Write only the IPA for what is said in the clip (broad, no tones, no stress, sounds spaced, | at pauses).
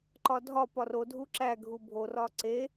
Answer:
ǃ ɒ dʱ ɒ p ɒ r o dʱ u ǁ æ ɡʱ u bʱ o r ɒ ǀ e